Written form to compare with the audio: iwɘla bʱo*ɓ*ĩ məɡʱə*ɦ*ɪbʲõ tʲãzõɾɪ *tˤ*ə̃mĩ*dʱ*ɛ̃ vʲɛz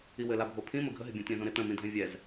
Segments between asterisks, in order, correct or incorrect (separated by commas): incorrect, correct, incorrect, correct